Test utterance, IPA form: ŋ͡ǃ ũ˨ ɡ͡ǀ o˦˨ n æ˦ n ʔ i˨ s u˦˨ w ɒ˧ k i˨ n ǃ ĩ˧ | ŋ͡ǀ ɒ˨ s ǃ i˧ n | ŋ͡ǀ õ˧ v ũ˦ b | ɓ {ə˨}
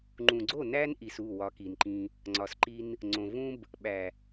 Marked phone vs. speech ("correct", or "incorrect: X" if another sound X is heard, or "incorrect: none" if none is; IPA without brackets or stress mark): incorrect: æ˨